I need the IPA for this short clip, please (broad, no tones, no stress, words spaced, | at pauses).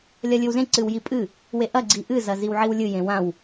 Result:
lʲɐlʲɨwzẽ ǀɨwjipʼɨ | weʔɐ ɡ͡ǀiʔɨ zɐziwʕiwlʲɨ jẽwãw